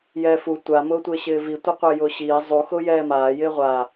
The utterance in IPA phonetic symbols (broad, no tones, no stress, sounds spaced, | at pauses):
j ɛː f u tʷ a m ʊː tʷ ɪː ɕ ɪː v i tʷ ɛ qʷ ɪː j ʊː ɕ iː zˤ u x ʊː j ɛː m aː j ɪː ʁʷ aː